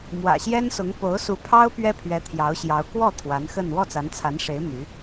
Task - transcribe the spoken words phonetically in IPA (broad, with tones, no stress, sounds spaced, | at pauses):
m w ä̰˨˩ ɕ j ɛ˥ n s ʊ˧˥ ŋ p o˧˥ ʊ̯ s u˧˥ pʰ ɑ˥ ʊ̯ p ɥ ɛ˥ pʰ ɥ ɛ˧˥ t̪ʰ j ɑ˧˥ ʊ̯ ɕ j ɑ˧˥ ʊ̯ k w ɔ˥˩ t̪ʰ w a˧˥ n x ə˥˧ n w ɔ˥˩ t͡s a˧˥ n t͡sʰ a˧˥ n ʂ e˧˥ ɪ̯ m y˧˥